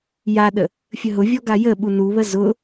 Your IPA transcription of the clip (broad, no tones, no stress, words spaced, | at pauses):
jaɗə | fʲəɦʊvʲɔ ɡajəɓu nuβə zʊ